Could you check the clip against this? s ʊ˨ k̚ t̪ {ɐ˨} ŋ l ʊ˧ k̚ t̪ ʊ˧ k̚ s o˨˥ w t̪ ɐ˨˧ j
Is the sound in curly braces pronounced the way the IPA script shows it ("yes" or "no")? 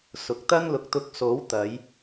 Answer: no